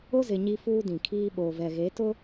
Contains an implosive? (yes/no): yes